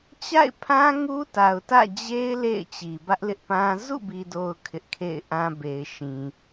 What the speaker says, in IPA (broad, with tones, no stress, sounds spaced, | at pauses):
t͡ɕ a̰˦˨ ɪ̯ pʰ ã˦ ŋ u˦ t a˨ ʊ̯ t ä̰˦˨ d͡ʑ e˦ ɪ̯ l ḛ˦˨ ɪ̯ t͡ɕ i˨ b ä˦ ʔ l ɪ˦ ʔ p ã˦ z ṵ˦˨ b i˨ d o˨ ʊ̯ kʰ ɪ˦ ʔ kʰ ḛ˦˨ ɪ̯ ʔ ã˦ b e˨ ɪ̯ ʃ ĩ˨